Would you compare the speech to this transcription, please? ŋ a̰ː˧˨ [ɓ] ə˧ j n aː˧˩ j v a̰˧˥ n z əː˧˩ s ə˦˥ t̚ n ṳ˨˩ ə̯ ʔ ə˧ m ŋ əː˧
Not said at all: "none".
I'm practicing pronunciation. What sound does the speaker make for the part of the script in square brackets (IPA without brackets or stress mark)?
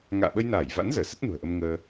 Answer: ɓ